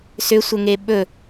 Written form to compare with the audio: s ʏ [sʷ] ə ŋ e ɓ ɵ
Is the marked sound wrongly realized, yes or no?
no